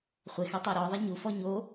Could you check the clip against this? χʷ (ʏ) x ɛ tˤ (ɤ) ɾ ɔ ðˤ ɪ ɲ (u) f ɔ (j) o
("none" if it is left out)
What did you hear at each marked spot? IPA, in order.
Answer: ɪ, ɤ, u, ɲ

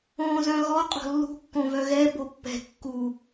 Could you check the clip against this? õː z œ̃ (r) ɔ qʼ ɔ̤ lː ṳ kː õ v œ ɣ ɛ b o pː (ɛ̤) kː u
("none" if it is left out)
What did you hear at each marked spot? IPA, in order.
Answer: ɣ, ɛ̤

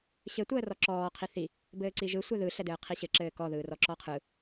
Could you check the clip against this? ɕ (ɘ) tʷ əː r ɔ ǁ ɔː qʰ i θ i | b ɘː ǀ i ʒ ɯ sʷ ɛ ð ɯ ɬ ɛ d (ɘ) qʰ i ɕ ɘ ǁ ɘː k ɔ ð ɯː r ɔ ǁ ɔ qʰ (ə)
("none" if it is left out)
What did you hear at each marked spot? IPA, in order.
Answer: ɘ, ɘː, ɯ

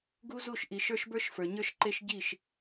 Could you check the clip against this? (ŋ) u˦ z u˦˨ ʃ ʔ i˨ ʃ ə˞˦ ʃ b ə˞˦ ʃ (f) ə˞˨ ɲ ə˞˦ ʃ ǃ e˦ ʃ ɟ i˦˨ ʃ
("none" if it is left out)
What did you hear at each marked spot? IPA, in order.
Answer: ɡ, f

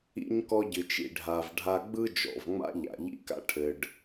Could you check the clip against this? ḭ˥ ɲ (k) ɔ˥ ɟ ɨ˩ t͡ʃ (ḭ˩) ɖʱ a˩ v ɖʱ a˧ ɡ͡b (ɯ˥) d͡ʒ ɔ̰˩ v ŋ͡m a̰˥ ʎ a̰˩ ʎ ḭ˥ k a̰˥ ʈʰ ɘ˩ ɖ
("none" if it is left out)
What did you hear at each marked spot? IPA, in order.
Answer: k, ḭ˩, ɯ˥

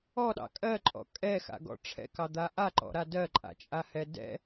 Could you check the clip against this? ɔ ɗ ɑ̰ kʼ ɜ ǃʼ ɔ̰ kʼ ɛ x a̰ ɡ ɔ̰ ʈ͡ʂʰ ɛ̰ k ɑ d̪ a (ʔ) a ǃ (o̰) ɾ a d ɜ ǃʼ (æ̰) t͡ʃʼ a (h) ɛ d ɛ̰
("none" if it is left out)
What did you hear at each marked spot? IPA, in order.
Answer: ʔ, ɔ̰, a̰, h

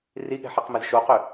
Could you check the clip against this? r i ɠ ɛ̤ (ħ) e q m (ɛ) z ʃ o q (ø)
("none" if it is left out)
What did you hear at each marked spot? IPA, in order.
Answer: ħ, ɛ, ø

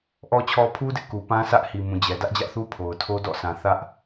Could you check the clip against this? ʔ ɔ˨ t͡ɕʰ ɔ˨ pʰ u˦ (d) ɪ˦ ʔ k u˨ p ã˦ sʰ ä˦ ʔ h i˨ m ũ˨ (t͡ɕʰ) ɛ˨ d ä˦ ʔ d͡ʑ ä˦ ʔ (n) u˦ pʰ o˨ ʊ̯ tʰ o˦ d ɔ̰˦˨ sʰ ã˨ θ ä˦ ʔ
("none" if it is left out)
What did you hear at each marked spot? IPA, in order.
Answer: d, d͡ʑ, θ

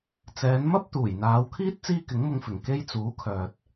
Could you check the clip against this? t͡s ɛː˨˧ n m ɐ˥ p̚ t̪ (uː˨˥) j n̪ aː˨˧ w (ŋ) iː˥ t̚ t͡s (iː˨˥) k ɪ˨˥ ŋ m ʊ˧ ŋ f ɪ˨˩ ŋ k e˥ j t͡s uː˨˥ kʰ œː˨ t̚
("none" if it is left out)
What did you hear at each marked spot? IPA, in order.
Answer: uː˨˩, kʰ, iː˥

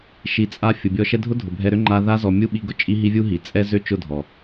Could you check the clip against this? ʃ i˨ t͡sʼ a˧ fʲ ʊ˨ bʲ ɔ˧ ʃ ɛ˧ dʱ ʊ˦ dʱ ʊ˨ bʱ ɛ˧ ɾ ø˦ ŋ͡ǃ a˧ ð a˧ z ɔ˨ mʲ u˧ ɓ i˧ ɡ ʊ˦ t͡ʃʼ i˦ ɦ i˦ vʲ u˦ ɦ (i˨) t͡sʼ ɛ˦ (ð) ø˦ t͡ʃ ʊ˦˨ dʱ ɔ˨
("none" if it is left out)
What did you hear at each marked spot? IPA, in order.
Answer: i˨, z

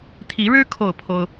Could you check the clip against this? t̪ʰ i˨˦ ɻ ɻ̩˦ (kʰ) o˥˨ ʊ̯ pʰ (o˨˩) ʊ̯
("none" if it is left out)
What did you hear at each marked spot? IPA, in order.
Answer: kʰ, o˦

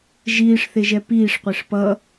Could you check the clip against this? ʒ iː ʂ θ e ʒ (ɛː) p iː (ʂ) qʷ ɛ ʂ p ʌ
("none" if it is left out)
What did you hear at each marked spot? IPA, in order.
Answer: ɛ, ʂ

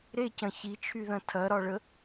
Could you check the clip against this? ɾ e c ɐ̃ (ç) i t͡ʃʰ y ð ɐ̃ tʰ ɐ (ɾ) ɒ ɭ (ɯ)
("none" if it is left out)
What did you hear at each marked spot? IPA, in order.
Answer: ç, ɾ, ə

